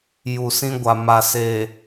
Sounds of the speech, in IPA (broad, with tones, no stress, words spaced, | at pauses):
ju˨sĩ˦ ɡʷa˨ma˨seː˨